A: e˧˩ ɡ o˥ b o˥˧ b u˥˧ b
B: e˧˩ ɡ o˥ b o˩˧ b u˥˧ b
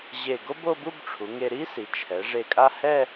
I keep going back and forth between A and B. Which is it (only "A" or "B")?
A